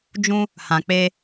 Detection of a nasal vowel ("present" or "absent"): present